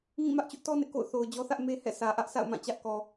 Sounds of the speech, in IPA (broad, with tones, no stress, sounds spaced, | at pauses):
ŋ ĩ˦˨ m ä˦ ʔ t͡ɕ ʊ˦ ʔ t ɔ˦ n ɪ˦ ʔ k o̰˦˨ ʊ̯ θ o˨ ʊ̯ d͡ʑ ɔ˦ θ ä˦ ʔ m e˦ h ɛ̰˦˨ sʰ ä˨ ʔ ä˦ ʔ sʰ a̰˦˨ ʊ̯ m ã˦˨ t͡ɕ ä˦ ʔ k ɔ˨